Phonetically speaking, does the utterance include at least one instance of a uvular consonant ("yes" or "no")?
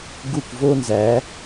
no